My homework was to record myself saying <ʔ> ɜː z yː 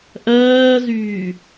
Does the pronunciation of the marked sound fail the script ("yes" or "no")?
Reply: no